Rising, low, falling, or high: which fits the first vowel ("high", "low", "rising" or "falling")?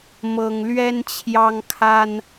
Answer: high